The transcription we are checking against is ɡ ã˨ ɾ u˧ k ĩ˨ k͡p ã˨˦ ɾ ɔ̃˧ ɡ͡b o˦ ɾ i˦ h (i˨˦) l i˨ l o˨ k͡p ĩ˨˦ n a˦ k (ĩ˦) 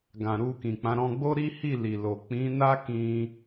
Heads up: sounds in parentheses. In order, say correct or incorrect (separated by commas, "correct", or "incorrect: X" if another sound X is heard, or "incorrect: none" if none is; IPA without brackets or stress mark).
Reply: incorrect: i˦˨, incorrect: ĩ˧